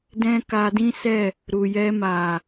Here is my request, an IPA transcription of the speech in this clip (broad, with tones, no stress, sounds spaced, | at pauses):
d ɛ̃˦ k a˧ d ĩ˦ s ɛ˦˨ | ɾ u˨ j ɛ˧ m a˨